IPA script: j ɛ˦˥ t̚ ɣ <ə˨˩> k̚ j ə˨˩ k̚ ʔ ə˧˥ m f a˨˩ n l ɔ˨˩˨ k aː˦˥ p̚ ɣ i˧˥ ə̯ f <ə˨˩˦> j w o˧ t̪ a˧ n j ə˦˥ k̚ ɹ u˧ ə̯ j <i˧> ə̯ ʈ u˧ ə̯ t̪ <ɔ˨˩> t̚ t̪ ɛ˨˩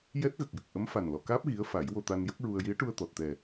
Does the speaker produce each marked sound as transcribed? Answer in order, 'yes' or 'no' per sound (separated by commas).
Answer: yes, no, no, yes